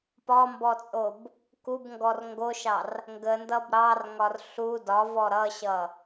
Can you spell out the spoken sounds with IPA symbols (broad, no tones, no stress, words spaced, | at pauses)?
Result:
pɒmbɔt͡sʼob | kubŋɡɔr ŋɡoʃɑr | ŋɡəndʌb ɾɑrŋɒr ɬu dɒvɔ ɾʌɕʌ